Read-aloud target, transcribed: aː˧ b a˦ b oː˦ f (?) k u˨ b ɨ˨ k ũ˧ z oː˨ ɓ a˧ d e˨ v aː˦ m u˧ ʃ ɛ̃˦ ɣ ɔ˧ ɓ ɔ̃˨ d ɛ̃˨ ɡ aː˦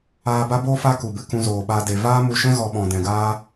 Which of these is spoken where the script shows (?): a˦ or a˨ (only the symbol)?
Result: a˦